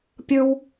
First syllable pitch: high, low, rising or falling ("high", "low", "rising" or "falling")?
high